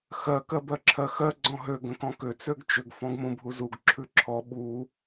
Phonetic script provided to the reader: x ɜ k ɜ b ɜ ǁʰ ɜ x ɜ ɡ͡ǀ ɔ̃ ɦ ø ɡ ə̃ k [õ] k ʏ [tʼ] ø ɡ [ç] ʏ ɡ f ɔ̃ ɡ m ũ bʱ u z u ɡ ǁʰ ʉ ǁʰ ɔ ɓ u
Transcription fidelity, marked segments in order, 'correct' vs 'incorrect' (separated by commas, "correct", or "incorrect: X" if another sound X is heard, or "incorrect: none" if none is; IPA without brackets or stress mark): incorrect: ɔ̃, incorrect: t͡s, incorrect: t͡ʃ